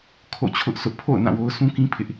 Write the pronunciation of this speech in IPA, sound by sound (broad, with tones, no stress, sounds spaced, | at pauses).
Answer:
kʰ o̰˦˨ t͡ɕʰ ʊ˦ ʔ s ʊ˦ ʔ pʰ o̰˦˨ ʊ̯ n ã˦˨ w o˦ ʊ̯ sʰ ũ˦ k ĩ˦ pʰ ɪ˦ ʔ